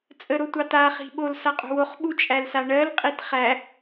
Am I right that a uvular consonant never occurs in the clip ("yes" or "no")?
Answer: no